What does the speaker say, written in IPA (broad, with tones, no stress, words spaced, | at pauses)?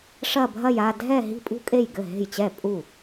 ʂɐ˥˧bʱɐ˥˧j a˥˧dʱɛ˥˧ ɦi̤˥˩pʼṳ˥˧kʼe˥˩jɡɘ˥˩ ɦe̤˥˩jt͡ɕɛ˥˩ pʼu˥˩